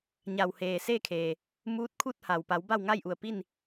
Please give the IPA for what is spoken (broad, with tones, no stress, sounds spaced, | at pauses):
ɲ a˩ w h eː˩ s e˥˨ kʰ e˩ | m uː˧˥ t̚ kʰ u˥˨ t̚ h a˩ w p a˩˧ w b a˥˨ w ŋ a˥˨ j ʔ u˧˩ ə̯ p i˥˨ n